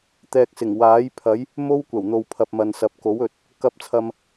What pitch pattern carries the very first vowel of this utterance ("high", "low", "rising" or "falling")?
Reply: low